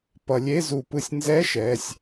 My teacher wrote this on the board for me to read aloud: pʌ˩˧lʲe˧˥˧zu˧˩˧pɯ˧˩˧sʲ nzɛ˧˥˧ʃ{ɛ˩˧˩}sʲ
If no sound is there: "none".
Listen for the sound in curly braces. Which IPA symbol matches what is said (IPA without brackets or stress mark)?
ɛ˩˧˩